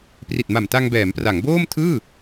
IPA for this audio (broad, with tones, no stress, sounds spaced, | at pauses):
p r i˨˩ t̚ m a˨˩ m t a˧ ŋ b ɛː˩˦ m p r a˩˦ ŋ b oː˥˩ m tʰ ɯː˥˩